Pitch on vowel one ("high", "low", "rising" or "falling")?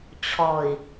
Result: low